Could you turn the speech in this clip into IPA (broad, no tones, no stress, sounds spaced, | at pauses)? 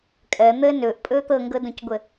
kʼ ɜ n̪ əː n ɵː ʔ pʼ ɵː t̪ ɤ ŋ ɡ ɤ d õ c ɡʷ ə